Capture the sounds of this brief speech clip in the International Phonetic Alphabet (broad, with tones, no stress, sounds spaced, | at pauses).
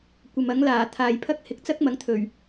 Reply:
kʷ ɐ˨ m ɐ˨˥ ŋ l aː˨˩ t̪ʰ aː˨ j pʰ ɐ˥ k̚ h ɪ˨ k̚ t͡s ɐ˥ k̚ m ɐ˨˥ ŋ t̪ʰ ɵ˨˩ ɥ